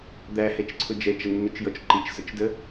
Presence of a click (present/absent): present